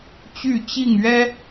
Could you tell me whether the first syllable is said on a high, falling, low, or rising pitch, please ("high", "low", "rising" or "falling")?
falling